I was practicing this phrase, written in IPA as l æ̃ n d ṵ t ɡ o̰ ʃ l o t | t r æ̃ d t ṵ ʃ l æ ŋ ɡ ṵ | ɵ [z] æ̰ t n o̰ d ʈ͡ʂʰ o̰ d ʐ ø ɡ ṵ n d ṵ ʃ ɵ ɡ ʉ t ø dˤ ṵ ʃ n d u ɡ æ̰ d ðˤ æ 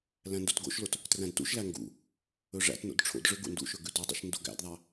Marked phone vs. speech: incorrect: ʐ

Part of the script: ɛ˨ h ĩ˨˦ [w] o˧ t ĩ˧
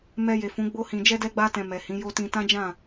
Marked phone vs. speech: incorrect: j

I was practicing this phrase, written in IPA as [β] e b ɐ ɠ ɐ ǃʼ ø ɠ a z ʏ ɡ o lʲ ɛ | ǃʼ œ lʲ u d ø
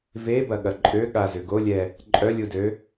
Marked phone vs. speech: incorrect: v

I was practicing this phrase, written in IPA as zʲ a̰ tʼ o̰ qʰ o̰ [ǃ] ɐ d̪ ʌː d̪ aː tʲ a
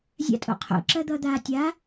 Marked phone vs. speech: incorrect: ǁ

